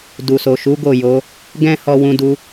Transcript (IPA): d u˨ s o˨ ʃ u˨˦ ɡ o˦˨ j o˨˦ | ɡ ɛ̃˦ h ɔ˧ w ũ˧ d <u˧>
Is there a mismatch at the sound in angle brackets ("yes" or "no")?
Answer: no